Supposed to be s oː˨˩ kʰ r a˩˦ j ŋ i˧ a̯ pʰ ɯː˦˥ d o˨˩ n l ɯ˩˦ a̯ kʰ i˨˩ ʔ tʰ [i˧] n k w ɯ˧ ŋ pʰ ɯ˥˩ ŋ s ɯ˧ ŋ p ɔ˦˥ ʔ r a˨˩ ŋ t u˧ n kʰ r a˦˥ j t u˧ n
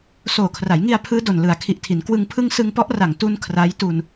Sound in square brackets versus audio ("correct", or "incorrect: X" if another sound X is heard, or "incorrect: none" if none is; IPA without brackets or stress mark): incorrect: i˩˦